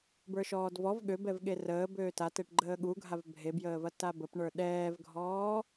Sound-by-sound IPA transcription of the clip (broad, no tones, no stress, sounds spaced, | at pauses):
b ə˞ ʃ ɔː d v ɔ v ɠ ø b ɛ v ɠ e r əː b øː t a t e ʈ ɡ͡ǃ əː ɠ u ɡʱ a v bʱ e b j əː v ɐ t a b ə p ɳ ə˞ ɗ ɛː v ɡʱ ɔː